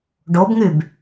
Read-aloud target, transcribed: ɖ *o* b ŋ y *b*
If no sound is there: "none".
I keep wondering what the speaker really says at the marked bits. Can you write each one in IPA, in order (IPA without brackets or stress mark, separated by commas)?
o, b